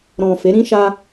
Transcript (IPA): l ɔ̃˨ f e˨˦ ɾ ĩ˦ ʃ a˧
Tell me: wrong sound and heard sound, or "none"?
l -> ɾ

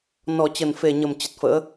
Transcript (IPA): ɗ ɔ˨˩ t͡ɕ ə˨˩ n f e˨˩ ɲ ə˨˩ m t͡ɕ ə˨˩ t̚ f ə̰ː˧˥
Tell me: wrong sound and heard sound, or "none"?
ɗ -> n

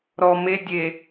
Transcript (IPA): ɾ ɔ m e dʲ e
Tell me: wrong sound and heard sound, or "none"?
none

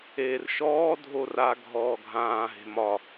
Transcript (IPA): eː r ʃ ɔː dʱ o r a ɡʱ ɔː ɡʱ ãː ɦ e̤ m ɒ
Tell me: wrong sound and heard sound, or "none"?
none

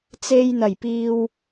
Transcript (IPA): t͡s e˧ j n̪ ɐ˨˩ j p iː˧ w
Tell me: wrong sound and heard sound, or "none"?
none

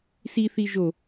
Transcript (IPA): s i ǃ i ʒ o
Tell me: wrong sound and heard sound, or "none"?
ǃ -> θ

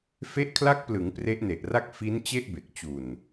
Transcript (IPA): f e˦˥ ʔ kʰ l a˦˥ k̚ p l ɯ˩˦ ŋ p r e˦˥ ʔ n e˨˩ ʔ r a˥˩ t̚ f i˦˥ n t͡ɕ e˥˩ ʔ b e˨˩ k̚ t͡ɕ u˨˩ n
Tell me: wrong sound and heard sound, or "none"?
t̚ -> k̚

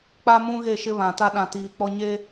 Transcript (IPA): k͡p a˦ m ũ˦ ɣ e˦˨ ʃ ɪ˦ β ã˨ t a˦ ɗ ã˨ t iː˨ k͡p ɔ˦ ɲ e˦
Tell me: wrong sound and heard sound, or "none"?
none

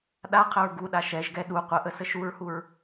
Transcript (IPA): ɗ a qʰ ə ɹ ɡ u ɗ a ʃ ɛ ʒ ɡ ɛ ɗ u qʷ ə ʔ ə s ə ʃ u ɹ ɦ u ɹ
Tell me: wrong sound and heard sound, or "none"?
ɦ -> h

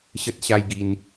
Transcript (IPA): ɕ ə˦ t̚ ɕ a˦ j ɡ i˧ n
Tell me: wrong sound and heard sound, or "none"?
none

